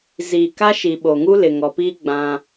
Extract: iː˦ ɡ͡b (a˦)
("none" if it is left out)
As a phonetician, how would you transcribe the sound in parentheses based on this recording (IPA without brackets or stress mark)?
ã˦